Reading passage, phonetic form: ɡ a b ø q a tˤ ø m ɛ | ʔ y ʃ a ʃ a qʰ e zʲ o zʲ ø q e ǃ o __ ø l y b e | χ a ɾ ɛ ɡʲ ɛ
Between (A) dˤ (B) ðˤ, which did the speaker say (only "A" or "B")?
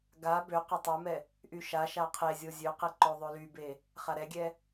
B